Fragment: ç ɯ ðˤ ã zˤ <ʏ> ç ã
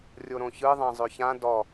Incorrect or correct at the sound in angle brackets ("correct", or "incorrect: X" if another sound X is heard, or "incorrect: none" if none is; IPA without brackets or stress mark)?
correct